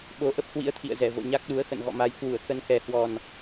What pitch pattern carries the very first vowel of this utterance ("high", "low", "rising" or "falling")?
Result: rising